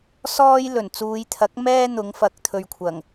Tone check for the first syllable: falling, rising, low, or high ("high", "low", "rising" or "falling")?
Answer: high